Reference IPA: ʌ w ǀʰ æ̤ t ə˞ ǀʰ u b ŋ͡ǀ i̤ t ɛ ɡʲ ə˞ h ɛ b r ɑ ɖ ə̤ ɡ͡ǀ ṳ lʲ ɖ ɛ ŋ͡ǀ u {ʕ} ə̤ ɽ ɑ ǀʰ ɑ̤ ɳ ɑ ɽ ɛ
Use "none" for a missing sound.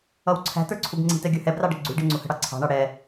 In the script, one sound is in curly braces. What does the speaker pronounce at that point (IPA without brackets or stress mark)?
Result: h